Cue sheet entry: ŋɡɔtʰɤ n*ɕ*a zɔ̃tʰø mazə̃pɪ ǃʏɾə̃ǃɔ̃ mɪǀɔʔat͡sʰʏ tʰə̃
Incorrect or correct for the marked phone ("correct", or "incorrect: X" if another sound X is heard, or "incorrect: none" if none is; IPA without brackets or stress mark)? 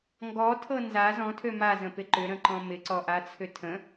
incorrect: z